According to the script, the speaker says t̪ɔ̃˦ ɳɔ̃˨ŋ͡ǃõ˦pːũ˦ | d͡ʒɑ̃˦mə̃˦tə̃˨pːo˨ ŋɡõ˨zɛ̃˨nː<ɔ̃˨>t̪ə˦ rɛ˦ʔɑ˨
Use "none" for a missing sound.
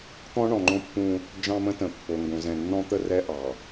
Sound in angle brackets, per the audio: ɔ̃˦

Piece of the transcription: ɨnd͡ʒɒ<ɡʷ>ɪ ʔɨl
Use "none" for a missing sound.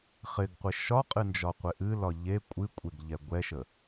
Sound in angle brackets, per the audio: qʷ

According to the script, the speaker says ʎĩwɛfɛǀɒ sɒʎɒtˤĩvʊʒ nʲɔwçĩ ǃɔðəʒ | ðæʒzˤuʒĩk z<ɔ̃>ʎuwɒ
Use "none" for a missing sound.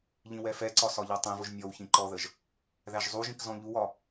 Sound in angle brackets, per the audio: ɔ̃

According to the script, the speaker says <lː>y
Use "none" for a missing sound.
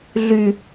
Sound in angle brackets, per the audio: ɮ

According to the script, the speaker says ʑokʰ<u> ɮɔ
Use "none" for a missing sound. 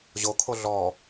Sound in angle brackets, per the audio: o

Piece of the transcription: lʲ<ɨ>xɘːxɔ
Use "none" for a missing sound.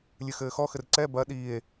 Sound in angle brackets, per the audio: ɨ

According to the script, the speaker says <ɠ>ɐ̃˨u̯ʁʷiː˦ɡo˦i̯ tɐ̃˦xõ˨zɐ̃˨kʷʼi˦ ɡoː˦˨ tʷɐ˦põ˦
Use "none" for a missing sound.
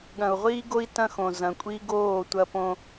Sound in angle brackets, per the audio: ɠ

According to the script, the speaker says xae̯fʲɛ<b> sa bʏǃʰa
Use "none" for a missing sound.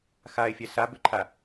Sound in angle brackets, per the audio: none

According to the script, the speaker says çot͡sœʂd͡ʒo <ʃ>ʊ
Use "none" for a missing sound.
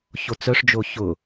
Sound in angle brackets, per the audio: ç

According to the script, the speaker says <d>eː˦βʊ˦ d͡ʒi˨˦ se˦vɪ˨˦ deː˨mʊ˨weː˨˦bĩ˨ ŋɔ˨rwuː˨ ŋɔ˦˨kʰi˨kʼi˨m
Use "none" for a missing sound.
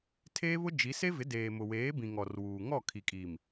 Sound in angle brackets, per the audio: tʰ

